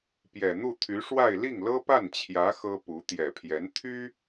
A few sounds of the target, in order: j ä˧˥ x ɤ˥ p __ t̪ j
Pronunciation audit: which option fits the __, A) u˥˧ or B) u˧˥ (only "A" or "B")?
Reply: B